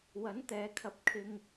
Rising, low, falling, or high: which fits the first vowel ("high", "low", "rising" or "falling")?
rising